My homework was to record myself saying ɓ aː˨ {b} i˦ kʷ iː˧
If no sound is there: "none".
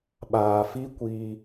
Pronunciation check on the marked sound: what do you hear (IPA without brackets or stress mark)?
f